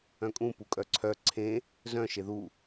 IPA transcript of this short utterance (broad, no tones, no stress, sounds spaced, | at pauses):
œ̃ kʼ ũ p u kʼ œ ǀʰ œ ǀʰ ẽ | z œ̃ ʃ e ð u